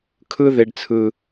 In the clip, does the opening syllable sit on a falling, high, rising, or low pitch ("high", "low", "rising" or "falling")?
high